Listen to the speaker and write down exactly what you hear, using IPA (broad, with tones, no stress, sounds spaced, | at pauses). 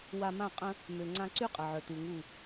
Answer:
w a˧ m ã˦˨ qʼ ə̃˧ | m ø˨ ŋ͡ǀ ã˧ ǀ y˦ qʼ ə˨ ʕ œ˨ t u˨ ŋ u˦˨